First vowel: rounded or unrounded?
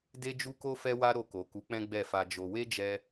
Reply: unrounded